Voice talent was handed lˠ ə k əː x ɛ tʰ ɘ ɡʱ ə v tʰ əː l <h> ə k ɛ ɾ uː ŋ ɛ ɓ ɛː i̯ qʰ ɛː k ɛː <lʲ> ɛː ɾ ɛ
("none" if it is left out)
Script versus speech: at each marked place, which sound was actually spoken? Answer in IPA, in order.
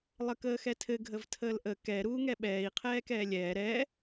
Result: ʔ, lʲ

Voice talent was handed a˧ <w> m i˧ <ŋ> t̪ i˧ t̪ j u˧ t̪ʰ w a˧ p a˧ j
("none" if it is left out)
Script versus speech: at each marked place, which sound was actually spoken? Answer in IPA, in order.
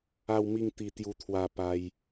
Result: w, ŋ

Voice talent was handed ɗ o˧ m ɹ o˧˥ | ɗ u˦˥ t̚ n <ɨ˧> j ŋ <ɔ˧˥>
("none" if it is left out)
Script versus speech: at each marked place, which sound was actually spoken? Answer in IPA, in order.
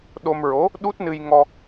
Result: ɨ˧, ɔ˧

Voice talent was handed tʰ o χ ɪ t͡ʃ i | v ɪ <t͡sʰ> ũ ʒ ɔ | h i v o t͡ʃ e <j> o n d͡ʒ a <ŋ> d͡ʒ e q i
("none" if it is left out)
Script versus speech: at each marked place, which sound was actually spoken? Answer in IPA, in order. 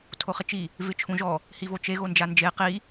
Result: t͡ʃʰ, ɣ, n

